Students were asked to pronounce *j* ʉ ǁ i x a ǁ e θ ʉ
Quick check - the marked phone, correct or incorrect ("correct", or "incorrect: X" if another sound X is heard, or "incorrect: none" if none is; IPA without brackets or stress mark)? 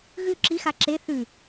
incorrect: ɣ